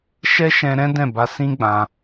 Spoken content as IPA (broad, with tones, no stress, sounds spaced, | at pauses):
ʃ ɛ˦ ʃ ɛ̃˧ ɾ ɛ̃˦ d ɛ̃˦˨ b a˧ s ĩ˦ ɡ͡b ã˧